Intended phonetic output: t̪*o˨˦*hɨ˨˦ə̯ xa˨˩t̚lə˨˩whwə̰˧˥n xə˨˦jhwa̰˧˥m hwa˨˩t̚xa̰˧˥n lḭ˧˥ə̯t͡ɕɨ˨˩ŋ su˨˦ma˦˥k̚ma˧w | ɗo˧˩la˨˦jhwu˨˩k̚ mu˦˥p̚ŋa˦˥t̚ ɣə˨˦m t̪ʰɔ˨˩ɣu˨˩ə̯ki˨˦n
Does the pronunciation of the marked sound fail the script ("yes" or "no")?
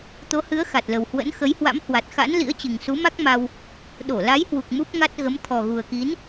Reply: no